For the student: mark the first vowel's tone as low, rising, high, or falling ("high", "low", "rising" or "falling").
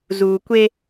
low